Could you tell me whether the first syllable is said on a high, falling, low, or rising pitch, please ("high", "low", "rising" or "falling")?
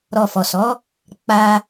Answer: low